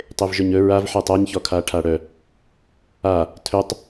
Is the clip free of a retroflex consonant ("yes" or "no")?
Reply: no